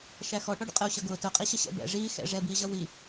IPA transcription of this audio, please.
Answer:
ʃ æ x ɔ ʈ ɔ ɖ ə̰ qʼ ə u̯ ɕ ʌ ɡ ʊː t ʊ qʼ i ɕ ə ɕ ɛ̰ b ɛ̰ ʐ iː x ɛ̰ ʐ ɛ b iː ʑ ʌ w i

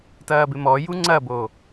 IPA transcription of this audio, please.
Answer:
t ɐː b ɪ m ɔ j u ŋ͡ǀ ɐ b o

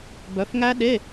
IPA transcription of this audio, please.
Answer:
b œ˨˦ f ŋ æ˦˥ ɗ e˧˥˧

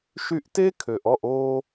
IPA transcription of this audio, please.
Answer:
ʃ y˧ ʔ t e˦ kʰ ø˨ ʔ ɔ˦˨ ʔ oː˧

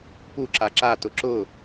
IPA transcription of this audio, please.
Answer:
p u ǁ a ǁ a t ʊ ǁ ʊ

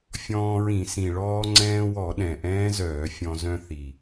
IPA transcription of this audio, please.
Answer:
fʲ ɔ̃ː˧ ɹ ĩ˧˩˧ s ĩ˨˩ ɭ ɔː˧ ŋ͡ǀ ɛ̃ː˧ w ɔ˧˩˧ ɗ ɛ̃˨˩ ʔ ɛ̃ː˦˥ z œː˧˩˧ fʲ ɔ̃˧ z œ̃˧ θ i˨˩

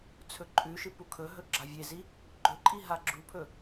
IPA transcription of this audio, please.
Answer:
t͡sʰ ɵ ǃʼ ʉ ʃ ɨ p u kʰ ɵ ɦ ɵ ɡ͡ǁ a vʲ e z i | ɡ͡ǃ ɵ ǃʼ i ɦ a ɡ͡ǁ u pʰ ɵ

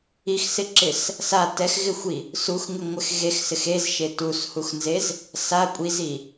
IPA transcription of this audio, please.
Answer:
i x s ɪ ǁ ɪ s | s a t ɛ x ɣ ɪ xʷ i | s u x ŋ ɪ ŋʷ ɪ x ɣ e x s ɪ x e z ʃ e t u s h u x n z e z | s a kʷʼ i z i

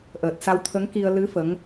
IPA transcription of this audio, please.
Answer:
ʔ əː˨˩ t̚ s a˧ w t̪ʰ ə˧˥ ŋ k i˧ ə̯ l ɨ˧˥ f ə˧˥ ŋ

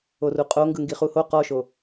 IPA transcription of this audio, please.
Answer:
o r u qʼ o ŋ ɡ ɯ ŋ ɡ i χ u h o q ɔ ʃ o

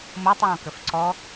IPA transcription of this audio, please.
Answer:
m o tˤ w ɔ̃ k ə f ǀ ɔ

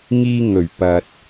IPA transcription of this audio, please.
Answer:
ŋ iː˧ ŋ ɵ˨˩ ɥ p ɐ˨ t̚

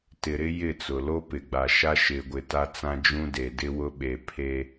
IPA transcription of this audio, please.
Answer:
t ɪ˨ ɾ ɪ˦ j ɪ˦˨ t͡s ʊ˨ l o˦ p ɪ˨ ɡ͡b a˨ ʃ a˦ ʃ ɪ˨ ɡʷ ɪ˨ t a˦ t͡s ã˦ d͡ʒ ũ˦ d e˨ d ɪ˦ w ʊ˦ ɓ e˨ pʰ e˦

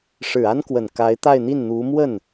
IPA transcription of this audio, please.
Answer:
ʂ ɻ̩˨˩ a˥ n k w ə˨˩ n k a˧˥ ɪ̯ t̪ a˥˧ ɪ̯ n̪ i˥˩ n n̪ u˧˥ m w ə˥˩ n

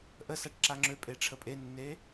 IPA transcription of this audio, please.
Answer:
ʔ ə s a ʈ ǁ a ŋ͡ǁ ø pʼ e ʈ͡ʂʰ ə pʼ e nː e

